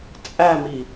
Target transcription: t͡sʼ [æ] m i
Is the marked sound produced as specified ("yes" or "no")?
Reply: yes